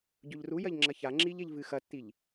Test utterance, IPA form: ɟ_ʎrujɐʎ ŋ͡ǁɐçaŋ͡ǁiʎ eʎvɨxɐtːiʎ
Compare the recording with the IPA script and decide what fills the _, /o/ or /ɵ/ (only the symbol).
ɵ